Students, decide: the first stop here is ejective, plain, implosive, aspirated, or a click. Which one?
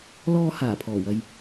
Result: aspirated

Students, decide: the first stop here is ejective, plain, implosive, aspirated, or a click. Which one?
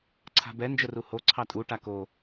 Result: click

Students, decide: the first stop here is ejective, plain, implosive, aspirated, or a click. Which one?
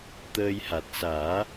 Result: plain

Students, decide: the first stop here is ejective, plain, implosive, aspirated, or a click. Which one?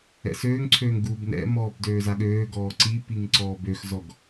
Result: click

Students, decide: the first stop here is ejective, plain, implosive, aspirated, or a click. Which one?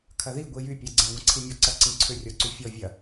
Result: aspirated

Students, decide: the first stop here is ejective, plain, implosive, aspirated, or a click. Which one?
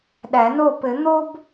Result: implosive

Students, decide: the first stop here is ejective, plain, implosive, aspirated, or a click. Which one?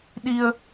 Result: implosive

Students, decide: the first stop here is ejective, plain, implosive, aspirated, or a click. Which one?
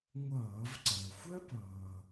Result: click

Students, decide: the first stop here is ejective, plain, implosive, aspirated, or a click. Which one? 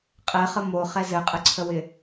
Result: ejective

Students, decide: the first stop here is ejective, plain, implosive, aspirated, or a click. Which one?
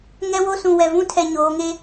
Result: aspirated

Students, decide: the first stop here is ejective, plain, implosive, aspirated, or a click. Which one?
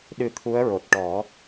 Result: implosive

